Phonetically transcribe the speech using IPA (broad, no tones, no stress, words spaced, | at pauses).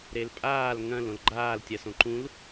ɾelpʼaːl ŋɐ̃l õlɡ͡ǃaːltʲɐsõ ǃũl